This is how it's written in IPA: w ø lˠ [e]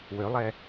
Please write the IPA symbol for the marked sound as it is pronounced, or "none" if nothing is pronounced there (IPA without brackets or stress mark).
ɛ